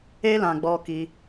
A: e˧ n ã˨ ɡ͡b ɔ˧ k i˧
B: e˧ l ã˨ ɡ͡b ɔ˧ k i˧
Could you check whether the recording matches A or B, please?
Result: B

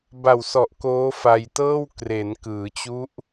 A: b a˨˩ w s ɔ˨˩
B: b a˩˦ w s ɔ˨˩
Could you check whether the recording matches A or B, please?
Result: A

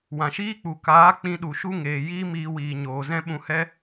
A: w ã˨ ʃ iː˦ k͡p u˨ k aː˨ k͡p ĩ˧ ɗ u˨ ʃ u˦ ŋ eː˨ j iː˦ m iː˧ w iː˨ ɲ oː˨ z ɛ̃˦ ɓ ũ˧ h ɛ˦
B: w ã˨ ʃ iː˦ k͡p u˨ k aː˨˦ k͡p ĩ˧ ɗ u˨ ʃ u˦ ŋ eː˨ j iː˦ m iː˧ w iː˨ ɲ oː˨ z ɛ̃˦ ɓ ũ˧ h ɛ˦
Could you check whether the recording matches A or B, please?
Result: B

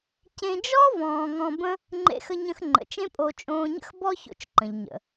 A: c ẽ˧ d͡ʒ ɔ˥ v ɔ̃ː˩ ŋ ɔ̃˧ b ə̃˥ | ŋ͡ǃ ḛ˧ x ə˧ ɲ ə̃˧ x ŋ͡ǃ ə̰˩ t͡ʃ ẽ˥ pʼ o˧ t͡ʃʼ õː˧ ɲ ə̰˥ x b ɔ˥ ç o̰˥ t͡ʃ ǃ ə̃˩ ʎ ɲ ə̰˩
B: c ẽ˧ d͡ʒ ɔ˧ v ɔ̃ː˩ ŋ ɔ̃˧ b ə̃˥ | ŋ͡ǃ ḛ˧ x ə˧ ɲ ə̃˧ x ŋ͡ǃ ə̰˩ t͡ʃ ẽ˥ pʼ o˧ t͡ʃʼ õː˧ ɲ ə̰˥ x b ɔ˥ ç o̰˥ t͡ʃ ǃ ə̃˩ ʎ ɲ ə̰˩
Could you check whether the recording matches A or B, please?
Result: A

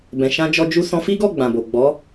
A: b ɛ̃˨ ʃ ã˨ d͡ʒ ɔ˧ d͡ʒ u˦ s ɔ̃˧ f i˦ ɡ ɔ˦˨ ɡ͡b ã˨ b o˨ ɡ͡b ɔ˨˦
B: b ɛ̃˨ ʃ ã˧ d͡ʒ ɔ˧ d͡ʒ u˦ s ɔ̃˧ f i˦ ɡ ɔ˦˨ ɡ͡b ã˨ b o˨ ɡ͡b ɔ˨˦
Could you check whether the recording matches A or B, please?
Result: B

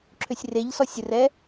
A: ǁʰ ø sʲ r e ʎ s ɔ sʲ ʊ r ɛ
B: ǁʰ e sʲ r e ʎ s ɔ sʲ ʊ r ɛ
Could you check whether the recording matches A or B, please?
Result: A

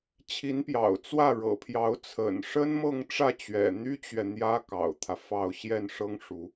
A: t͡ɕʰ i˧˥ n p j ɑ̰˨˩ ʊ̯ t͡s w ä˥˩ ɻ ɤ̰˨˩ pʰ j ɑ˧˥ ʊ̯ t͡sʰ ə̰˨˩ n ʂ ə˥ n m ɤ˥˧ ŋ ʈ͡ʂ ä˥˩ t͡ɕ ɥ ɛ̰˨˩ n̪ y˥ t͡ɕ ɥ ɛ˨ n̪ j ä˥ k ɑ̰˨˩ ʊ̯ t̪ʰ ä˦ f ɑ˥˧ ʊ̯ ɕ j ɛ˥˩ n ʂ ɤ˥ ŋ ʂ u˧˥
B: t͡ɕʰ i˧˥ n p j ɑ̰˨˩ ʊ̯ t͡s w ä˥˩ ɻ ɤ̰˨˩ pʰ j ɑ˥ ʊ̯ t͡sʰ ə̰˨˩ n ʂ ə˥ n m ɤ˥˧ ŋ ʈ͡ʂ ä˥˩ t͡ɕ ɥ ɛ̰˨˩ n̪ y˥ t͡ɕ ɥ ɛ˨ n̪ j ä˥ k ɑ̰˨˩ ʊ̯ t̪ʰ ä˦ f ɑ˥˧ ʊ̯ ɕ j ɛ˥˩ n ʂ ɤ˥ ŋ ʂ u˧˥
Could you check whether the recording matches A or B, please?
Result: A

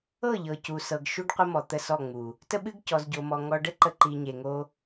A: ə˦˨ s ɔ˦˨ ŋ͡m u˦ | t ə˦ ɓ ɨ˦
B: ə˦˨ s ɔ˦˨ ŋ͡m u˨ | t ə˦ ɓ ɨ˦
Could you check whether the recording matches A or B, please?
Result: B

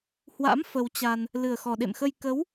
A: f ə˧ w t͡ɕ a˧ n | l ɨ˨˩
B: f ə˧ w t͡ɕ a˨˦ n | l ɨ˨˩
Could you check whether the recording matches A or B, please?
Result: A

